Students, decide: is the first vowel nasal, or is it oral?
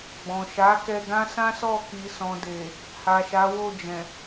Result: nasal